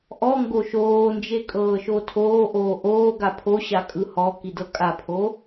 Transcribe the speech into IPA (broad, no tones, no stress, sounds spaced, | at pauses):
ʔ ɔ ŋ ɡ o ʃ oː n d͡ʒ e kʼ ɤː ʃ o tʰ oː ʔ oː ʔ oː ɡ a pʰ o ɕ a kʼ ɯ h ɔ k i d ɤ kʼ a pʰ o